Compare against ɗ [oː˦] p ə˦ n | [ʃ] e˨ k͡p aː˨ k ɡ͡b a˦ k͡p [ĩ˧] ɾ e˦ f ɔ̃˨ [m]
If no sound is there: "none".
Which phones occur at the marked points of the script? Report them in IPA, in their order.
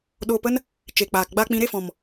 oː˧, t͡ʃ, ĩ˧, m

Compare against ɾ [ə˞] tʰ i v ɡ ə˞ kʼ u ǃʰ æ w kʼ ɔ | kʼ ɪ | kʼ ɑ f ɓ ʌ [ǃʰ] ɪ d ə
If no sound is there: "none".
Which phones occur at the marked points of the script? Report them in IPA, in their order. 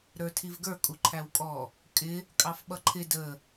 ə˞, ǃʰ

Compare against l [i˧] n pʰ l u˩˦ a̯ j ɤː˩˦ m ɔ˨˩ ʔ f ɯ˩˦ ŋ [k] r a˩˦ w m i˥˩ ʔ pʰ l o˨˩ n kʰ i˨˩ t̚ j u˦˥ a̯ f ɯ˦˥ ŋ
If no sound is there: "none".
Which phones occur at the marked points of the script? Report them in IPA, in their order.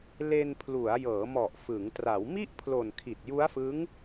e˧, t

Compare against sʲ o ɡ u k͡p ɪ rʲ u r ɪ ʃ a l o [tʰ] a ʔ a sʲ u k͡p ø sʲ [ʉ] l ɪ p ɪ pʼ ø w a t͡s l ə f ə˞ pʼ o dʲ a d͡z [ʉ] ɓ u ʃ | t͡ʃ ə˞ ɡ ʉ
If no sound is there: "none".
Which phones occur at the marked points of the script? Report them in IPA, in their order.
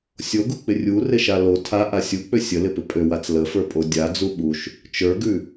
tʰ, ə, u

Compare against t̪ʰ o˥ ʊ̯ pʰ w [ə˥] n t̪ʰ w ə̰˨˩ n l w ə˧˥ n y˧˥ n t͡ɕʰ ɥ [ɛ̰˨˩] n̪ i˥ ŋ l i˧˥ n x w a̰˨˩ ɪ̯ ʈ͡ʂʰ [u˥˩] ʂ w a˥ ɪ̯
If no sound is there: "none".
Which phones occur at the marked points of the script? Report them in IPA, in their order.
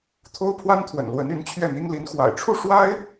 a˥, ɛ˥˩, u˥˩

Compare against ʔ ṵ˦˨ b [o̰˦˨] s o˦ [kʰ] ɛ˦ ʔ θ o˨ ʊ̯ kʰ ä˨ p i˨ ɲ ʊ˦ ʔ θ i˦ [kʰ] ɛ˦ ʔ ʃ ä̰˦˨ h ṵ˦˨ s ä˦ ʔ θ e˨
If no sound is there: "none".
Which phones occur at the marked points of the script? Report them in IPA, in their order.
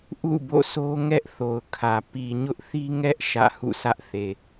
o̰˦˨, ŋ, ŋ

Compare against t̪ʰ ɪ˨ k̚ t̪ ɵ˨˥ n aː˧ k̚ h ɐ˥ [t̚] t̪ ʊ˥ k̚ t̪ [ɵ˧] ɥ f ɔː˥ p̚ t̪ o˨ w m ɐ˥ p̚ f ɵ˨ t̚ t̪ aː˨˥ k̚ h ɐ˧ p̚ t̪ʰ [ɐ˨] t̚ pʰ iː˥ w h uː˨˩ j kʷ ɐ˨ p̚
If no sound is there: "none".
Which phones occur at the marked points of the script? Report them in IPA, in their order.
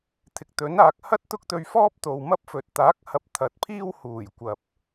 t̚, ɵ˧, ɐ˨˥

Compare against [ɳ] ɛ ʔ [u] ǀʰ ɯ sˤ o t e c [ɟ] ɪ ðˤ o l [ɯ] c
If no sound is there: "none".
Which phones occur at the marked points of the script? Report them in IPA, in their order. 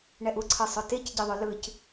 ɳ, u, ɟ, ɯ

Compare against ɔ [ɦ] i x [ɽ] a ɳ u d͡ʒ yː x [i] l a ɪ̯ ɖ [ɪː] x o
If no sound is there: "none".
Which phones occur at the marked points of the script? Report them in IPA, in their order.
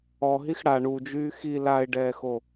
ɦ, ɽ, i, ɛː

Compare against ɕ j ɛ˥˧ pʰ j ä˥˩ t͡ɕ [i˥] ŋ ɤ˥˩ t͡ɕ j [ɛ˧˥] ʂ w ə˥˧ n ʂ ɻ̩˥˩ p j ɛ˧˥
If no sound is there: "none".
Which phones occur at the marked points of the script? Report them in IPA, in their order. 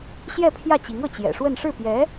i˧˥, ɛ̰˨˩

